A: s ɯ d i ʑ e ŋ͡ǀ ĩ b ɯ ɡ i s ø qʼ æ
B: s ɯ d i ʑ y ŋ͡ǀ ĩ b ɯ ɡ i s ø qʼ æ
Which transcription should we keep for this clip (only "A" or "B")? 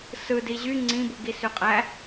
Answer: B